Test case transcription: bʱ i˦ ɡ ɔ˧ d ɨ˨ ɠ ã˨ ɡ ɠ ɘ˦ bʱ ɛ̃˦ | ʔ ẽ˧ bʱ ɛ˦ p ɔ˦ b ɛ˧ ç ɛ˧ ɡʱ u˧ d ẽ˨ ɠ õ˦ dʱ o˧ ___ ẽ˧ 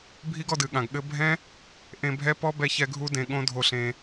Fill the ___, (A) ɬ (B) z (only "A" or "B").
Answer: A